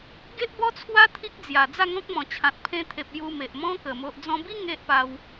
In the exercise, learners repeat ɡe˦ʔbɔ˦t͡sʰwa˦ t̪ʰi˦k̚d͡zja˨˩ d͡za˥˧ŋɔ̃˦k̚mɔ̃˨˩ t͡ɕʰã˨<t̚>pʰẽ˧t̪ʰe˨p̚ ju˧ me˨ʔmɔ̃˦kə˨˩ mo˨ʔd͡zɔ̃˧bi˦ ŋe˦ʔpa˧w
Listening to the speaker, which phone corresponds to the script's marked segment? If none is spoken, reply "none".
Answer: t̚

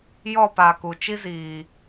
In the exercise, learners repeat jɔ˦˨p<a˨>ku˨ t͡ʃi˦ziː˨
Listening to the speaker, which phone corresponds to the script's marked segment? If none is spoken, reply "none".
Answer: a˨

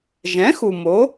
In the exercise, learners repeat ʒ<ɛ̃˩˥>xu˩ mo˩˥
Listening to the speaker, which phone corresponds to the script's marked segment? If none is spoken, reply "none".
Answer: ɛ̃˩˥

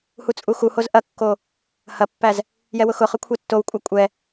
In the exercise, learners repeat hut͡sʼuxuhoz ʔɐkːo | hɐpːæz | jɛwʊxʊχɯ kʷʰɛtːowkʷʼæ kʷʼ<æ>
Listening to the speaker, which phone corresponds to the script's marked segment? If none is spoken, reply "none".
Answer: ɛ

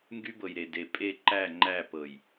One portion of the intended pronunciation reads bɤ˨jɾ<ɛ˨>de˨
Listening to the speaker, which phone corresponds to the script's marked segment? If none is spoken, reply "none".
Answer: e˨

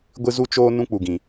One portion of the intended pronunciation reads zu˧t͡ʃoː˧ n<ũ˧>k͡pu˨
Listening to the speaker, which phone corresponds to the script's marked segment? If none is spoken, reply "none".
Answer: ũ˦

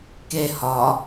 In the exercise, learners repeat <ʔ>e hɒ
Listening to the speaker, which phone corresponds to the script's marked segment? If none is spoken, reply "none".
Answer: k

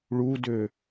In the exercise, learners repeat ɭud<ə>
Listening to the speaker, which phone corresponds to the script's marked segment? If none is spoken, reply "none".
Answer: ø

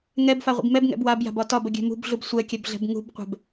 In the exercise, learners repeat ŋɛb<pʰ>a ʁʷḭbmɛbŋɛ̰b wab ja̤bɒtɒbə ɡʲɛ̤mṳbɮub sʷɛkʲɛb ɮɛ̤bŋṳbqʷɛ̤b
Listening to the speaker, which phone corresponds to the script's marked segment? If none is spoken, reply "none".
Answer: f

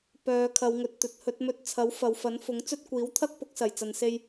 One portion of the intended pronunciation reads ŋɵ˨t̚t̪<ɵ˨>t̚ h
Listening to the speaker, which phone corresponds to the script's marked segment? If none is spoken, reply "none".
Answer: ɵ˨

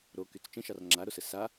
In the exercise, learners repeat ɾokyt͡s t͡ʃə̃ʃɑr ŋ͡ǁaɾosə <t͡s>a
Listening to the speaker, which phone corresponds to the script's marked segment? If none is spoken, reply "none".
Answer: s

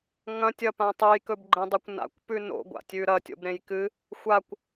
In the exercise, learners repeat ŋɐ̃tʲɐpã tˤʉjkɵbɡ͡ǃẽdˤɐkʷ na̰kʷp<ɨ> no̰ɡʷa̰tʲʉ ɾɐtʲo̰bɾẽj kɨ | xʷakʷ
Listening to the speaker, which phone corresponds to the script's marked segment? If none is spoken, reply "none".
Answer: ʉ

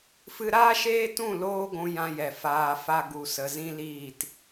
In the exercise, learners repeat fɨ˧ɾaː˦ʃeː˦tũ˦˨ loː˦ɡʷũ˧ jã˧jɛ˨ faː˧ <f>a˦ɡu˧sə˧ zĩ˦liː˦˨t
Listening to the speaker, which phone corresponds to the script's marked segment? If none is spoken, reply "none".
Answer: f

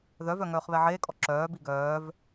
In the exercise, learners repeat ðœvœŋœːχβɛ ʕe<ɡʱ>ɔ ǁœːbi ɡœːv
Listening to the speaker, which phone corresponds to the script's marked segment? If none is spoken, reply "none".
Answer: kʼ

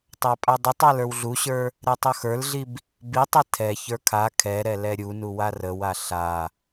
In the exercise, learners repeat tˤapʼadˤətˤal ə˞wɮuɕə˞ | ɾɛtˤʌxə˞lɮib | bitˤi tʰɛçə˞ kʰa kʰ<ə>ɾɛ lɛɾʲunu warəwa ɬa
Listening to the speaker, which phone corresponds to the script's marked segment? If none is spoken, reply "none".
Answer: ɛ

